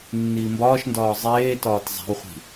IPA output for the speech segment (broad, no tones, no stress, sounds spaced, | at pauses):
nː iː m b ɒː ʃ n d ɒː zˤ eː t ɒː t zˤ æ̤ w χʷ i̤